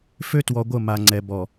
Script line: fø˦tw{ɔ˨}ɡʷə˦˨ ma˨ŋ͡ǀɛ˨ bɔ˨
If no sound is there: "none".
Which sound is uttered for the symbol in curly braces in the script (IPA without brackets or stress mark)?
ɔ˨